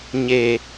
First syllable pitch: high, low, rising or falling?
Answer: low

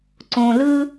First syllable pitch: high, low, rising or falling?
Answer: low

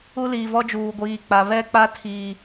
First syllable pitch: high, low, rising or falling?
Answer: high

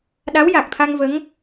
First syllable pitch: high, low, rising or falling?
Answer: rising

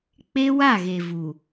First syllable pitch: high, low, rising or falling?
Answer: high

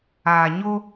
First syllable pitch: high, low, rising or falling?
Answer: low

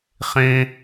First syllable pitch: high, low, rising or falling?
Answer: low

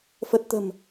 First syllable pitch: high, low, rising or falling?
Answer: low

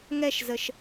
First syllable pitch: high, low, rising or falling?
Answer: falling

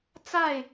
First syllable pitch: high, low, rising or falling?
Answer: falling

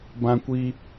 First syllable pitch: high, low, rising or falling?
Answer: high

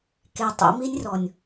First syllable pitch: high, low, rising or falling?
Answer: low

